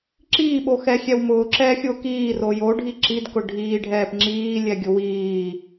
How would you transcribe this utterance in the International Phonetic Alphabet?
ǁiːɓoxɛxʲɛw mʊːǁɛːxʲʊː kiːro joɖʱi ǁidkʊ ɖʱiːɖʱɛːp ŋ͡ǁiːlʲɛɡʲʊ wiː

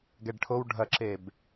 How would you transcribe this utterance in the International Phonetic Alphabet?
ɡɛɖʈʰow ɖʱɐǁeb

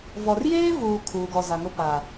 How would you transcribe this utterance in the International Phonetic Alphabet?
vɔ˨rjeː˦vuː˨ kʰuː˨ɡɔ˨za˨ ŋʊ˦pa˨

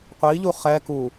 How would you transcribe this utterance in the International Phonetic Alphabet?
qʷi ʎuχɛ ku

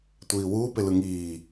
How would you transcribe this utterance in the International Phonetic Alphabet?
tʷiːwuːpelɯ ŋiː

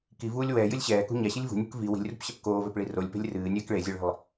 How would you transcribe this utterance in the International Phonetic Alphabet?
kivuːlʲ wɛːjɨlʲ ɕɛːkṳ ɲaɕɨlʲ vṳnʲṳk vi wi̤lʲrṳpɕɐp koːvɛpɭi rolʲpe̤lʲ rɨːnʲɛːk ɭezʲoɭi̤lˠ

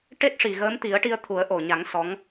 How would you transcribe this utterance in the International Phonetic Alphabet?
ʈe˦˥t̚ʂi˨˩ ɣəː˧˥mt̪i˨˩˦ə̯ʈi˧ə̯t̪ʰu˨˩˦ə̯ ʔo˨˩ɲa˨˩˦ŋ sɔ˧˥ŋ

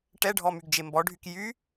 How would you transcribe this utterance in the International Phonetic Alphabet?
ʈɛɖʱɔmyɡd͡ʒe mbɔɖʱyk jy

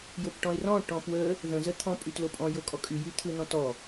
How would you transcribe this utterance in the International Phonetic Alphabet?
jopʈɔ̃ɪ̯rɔ̃ ʈɔ̃pwə | ðə̃ zət̪ʰɔ̃ pʼytlopʼɔ̃ jokʼɔkʼy jyt̪ʰɯn̪ɔ̃tɔ

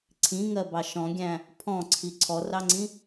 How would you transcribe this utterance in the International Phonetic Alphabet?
ǀʰĩŋɜbɑ ʃɔ̃ɡʲæ̃ | pʰɔ̃ǀʰi ǀʰɔrɑŋ͡ǀĩ

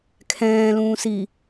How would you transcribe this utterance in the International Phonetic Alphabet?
kʰɛ̃ːlũːsi

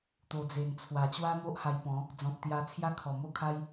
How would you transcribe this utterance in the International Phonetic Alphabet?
t̪o˨˩d͡ze˨˩nt͡sʰwa˨˩ t͡ɕwa˦mo˦ʔ ha˧jpɔ̃˨˦ | d͡zɔ̃˨t̚t̪ja˧ t͡sʰja˦kʰɔ˨˩mo˥˧kʰa˦j

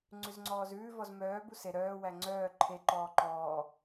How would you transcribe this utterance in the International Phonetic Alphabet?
ŋ͡ǀʉzŋ͡ǀɔːzʉː vɔzmœː buse ɾœː wæŋ͡ǀœː ǃʰe ǃɔːǃɔː

